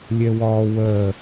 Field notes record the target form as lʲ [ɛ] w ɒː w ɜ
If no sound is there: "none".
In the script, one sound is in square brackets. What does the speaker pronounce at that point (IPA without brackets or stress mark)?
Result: ɛ